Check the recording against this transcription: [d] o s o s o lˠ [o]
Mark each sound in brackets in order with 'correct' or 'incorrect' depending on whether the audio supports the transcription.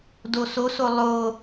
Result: correct, correct

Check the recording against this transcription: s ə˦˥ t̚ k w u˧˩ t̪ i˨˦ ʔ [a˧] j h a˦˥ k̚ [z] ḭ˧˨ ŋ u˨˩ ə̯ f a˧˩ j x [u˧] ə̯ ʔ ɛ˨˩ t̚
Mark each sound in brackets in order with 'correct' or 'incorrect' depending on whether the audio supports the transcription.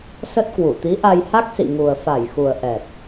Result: correct, incorrect: s, incorrect: u˨˩

